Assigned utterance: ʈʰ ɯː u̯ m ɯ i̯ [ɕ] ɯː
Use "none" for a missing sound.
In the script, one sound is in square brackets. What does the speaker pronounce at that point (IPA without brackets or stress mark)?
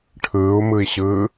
ɕ